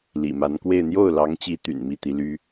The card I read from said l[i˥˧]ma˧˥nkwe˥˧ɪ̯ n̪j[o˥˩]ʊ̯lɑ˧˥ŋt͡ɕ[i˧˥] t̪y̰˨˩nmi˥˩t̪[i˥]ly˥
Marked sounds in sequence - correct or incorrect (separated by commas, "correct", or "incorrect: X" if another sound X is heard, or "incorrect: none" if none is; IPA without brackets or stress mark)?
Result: incorrect: ḭ˨˩, correct, correct, incorrect: i˧˥